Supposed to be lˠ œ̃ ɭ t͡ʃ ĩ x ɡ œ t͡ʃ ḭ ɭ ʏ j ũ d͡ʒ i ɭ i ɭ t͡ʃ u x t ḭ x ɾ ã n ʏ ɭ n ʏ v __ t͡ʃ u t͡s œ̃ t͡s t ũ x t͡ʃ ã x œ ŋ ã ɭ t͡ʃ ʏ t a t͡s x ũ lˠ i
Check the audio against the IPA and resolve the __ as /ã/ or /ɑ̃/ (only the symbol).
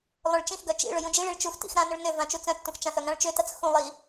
ã